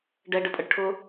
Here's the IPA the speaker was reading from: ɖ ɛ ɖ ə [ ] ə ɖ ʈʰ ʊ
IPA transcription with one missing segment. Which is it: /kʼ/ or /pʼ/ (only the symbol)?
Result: pʼ